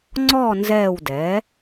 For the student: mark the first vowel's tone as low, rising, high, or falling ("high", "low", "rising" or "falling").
falling